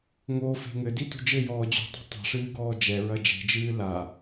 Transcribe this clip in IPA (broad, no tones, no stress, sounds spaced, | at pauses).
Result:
ŋ o f e̤ ŋ ɘ d i t ṳ d͡ʒ ɘ j ɔː d͡ʑ ṳ dˤ ṳ tˤ ɛ̤ ʂ ɨː ɡ ɔː d͡ʒ ɛ ɹ ɐ d͡ʒ e̤ d͡ʒ ɨː l a